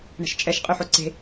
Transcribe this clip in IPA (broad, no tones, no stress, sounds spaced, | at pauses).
ɳ ə̤ ʃ t͡ʃʼ ɛ ʃ qʼ y ħ o ǀ e̤